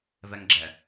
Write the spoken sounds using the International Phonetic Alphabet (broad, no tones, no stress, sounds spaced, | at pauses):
v ɛ ŋ ɡ͡ǁ ɛ